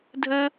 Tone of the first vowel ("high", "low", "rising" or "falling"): high